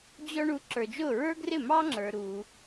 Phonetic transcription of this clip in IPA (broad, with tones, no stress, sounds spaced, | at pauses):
d͡ʑ ɔ˧ ɳ u˩˥ ǁ ə˞˩ d͡ʒ ʊː˥˩ ɹ ə˞˥ ɡ r ɪ˥˩ m ɑ˥ ŋ͡ǁ ə˞˩ ɾ uː˩